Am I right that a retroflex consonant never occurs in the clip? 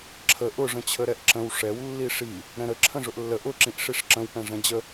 no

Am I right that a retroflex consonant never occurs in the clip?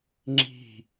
yes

